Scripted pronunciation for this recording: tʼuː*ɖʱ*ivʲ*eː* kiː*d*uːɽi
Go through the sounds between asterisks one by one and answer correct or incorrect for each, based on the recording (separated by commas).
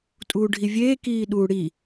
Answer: correct, correct, incorrect